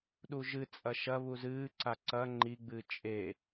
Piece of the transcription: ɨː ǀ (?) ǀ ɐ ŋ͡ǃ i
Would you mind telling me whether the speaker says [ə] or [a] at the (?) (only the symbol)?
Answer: a